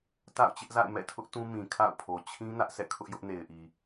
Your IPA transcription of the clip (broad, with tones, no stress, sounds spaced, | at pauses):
t a̰˦˨ ʊ̯ t͡ɕ ɪ˦ ʔ z a̰˦˨ ɪ̯ m ɛ̰˦˨ tʰ ʊ˦ ʔ t ũ˦ m ĩ˨ kʰ a̰˦˨ ʊ̯ pʰ o˨ t͡ɕʰ ĩ˦ n ä˦ ʔ sʰ ɛ̰˦˨ kʰ ʊ˦ ʔ j ʊ˦ ʔ n e˨ ɪ̯ ʔ i˨